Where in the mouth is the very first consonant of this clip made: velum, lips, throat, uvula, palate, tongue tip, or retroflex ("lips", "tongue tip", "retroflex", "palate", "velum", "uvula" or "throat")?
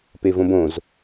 lips